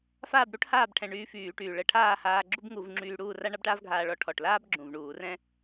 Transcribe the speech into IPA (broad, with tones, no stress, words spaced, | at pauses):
faː˥˨b ɽu˥ʈhaː˥˨bʈʰɛ̃˨˩ ɳyː˧fyː˧˩˧ʈyː˨˩ ɭə˧˩˧ʈʰaː˥˨haː˧ ɡ͡ǁu˥bŋu˧˩˧vŋ͡ǁyː˧ ɽuː˥˨ ra˥ɳa˥bʈaː˥vɡʱaː˧ ɭɔ˥˨ ʈʰɔ˨˩ʈlaː˥b ɡ͡ǁũ˨˩vɳuː˧˩˧rɛ̃˥